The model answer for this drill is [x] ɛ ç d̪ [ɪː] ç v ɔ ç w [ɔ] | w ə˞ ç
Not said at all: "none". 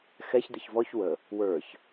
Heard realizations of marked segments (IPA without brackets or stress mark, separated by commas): x, ɪ, ə